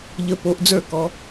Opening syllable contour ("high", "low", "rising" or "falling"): rising